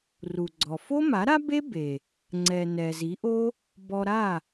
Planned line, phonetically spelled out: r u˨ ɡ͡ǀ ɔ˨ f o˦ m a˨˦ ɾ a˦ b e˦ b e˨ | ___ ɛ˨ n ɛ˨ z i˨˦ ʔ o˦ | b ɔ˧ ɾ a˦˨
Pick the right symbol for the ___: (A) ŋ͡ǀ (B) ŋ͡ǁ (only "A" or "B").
A